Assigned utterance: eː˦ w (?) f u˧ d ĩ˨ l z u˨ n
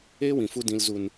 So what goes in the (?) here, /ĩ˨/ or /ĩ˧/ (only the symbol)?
ĩ˨